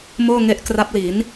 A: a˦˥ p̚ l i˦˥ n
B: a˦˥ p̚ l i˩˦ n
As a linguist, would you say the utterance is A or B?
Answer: B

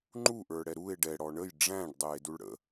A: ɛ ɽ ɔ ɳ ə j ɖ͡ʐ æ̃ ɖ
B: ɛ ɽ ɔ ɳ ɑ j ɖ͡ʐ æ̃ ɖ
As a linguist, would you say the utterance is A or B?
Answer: A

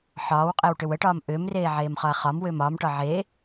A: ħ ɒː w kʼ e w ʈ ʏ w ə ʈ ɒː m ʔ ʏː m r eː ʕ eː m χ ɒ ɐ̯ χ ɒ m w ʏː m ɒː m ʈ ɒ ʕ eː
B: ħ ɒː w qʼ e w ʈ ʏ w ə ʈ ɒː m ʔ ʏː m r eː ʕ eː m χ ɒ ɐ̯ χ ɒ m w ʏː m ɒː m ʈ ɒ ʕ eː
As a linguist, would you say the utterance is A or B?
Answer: B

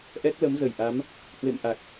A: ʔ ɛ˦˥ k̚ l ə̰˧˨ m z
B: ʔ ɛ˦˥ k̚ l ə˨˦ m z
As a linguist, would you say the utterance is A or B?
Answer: B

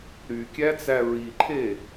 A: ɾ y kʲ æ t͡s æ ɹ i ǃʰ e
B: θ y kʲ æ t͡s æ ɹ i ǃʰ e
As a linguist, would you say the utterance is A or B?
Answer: A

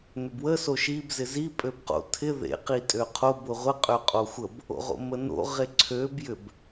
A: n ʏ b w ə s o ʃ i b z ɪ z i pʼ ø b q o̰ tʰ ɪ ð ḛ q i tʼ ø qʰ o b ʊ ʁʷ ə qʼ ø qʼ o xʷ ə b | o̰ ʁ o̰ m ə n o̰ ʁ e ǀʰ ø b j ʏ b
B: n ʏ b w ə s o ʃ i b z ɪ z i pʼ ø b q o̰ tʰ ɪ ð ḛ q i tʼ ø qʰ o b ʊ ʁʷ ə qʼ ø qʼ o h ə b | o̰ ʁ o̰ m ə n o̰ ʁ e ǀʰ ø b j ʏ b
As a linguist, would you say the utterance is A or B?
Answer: A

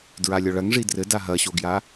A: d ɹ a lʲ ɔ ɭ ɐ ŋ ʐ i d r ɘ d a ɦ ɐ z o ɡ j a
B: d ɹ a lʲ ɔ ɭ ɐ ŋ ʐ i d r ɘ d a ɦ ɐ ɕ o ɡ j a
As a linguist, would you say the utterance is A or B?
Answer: B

